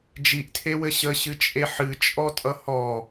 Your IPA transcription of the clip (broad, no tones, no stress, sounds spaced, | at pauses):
d͡ʒ i ʔ tʰ e w ɘ ɕ ə ɕ ɨ t͡ʃʼ e ħ ɨ t͡ʃʼ ɔ tʼ ʌ h ɔ